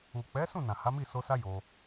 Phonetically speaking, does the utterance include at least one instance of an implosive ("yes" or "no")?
no